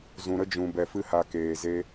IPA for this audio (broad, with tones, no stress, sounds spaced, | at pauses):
z ũ˨ ɾ ə˦ d͡ʒ ũ˨ b ɛ˧ f ɨ˦ h a˧ k eː˨ z e˦